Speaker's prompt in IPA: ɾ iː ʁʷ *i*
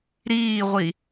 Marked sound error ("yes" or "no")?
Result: no